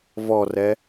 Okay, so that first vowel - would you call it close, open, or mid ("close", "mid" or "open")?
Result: mid